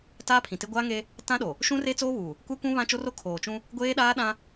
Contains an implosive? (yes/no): yes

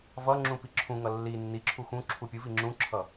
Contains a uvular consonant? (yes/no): no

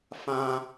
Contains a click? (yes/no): no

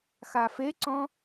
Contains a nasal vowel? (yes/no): yes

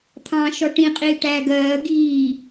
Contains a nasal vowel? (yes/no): yes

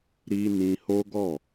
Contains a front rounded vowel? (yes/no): no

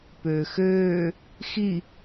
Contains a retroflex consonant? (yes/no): no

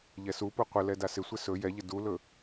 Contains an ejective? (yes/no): no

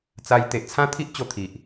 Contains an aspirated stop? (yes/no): yes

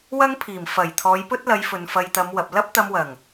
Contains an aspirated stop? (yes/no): yes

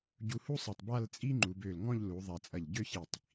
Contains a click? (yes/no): yes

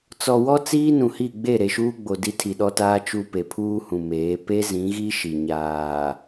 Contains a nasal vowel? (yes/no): yes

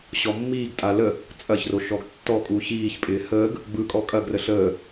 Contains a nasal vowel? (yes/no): no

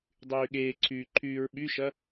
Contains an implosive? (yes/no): yes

